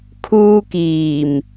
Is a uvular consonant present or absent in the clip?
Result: absent